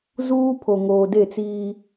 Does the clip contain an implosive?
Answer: no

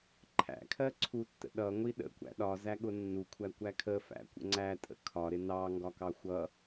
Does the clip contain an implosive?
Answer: yes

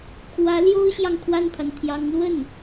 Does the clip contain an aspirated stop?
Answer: yes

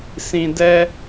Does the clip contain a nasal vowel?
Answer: yes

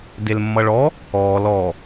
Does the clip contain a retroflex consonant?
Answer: yes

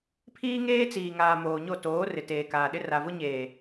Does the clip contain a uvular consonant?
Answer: no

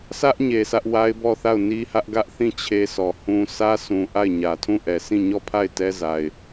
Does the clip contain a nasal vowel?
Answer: yes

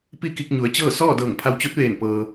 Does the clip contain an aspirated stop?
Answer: yes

